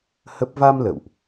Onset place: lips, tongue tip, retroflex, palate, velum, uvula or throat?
throat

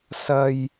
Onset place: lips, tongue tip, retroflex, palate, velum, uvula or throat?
tongue tip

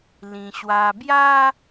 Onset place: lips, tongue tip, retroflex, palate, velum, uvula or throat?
tongue tip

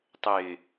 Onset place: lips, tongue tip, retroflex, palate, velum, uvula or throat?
tongue tip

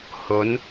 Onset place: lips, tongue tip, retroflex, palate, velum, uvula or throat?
throat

